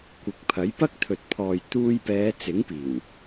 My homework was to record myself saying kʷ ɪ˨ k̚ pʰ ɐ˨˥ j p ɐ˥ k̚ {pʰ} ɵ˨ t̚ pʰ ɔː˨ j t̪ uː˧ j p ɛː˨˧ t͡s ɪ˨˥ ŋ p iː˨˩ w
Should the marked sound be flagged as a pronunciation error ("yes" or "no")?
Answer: yes